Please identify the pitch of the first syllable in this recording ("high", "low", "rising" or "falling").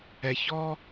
low